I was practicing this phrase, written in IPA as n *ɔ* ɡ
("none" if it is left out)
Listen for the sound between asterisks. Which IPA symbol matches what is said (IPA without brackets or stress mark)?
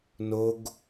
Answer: o